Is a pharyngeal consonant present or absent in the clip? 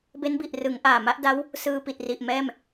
absent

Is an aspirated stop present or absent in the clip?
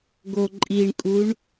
absent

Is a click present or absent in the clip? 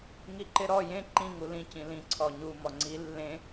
present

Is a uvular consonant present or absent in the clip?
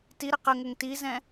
present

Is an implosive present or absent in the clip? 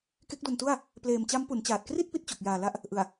absent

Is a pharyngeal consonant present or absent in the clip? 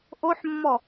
present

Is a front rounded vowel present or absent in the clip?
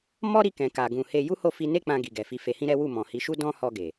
absent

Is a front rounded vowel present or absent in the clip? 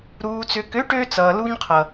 present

